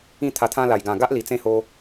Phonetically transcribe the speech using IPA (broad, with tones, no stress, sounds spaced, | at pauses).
ĩ˥˧ t̪ʰ a˧ t̪ʰ ã˦ l a˨˩ j ɡ ã˨˩ ɡ a˦ ʔ l i˨˩ t͡s ẽ˦ h o˧